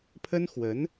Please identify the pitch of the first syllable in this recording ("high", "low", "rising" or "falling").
high